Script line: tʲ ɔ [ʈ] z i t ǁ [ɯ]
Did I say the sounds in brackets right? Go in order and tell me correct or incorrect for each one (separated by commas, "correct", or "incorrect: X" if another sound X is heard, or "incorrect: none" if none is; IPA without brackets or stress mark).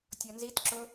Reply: incorrect: n, incorrect: ʊ